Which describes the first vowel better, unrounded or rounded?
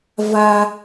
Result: unrounded